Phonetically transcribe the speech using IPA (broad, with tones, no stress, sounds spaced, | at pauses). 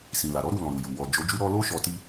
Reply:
s ĩ˨ l a˨ ɾ ɔ˨˦ ɾ u˦˨ l ɔ̃˨ ɾ u˨ j u˨ w ɔ˨ d͡ʒ o˨˦ d͡ʒ u˦ ɾ ɔ˧ l o˦ ʃ ɔ˧ t i˦